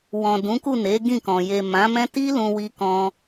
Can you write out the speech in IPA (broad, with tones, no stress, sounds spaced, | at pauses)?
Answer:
w ɔ̃˨ d ũ˨˦ k u˦˨ n e˨˦ ɡ ĩ˦˨ k ɔ̃˨ j e˨ m ã˨˦ m ɛ̃˦ t i˦ l ũ˧ w i˧ k ɔ̃˧